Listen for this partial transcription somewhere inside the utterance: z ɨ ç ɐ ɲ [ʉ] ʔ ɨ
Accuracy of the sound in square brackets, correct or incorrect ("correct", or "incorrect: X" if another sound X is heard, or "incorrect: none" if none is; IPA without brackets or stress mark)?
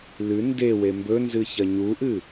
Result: incorrect: u